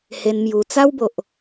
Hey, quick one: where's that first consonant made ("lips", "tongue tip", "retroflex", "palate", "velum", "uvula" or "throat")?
throat